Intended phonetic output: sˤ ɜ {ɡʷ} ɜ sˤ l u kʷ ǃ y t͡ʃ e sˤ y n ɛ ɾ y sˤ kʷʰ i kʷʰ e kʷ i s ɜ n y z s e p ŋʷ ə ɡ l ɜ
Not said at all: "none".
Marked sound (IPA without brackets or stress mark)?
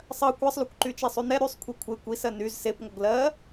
kʷ